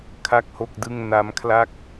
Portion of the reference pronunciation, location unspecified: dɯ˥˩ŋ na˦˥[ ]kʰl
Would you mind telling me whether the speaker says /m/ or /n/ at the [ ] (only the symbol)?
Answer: m